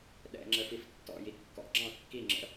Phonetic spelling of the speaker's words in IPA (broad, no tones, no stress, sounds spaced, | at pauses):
ɗ ɛ̰ ŋ͡ǁ ə f i f tː ɔ̰ j i kː ɔ̰ ɡ͡ǁ ɑ̃ kː i ŋ͡ǁ ə̰